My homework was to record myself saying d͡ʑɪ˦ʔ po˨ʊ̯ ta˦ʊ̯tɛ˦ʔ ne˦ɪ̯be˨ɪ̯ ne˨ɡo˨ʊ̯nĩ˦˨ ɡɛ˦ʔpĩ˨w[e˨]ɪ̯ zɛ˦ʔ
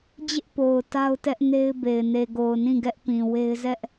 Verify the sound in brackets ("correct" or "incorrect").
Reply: incorrect